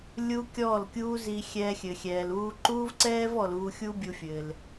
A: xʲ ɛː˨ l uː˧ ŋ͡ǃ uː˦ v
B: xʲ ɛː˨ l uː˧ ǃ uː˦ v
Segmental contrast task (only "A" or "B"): B